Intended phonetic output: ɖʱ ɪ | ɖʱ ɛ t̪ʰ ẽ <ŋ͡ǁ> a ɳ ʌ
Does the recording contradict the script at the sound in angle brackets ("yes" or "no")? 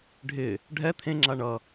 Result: no